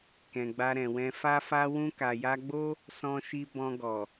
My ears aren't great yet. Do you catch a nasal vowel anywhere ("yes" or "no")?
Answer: yes